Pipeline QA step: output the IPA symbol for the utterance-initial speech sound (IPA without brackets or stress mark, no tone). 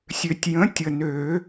sʲ